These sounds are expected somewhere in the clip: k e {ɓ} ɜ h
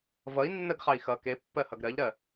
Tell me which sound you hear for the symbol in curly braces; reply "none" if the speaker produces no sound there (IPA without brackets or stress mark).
pː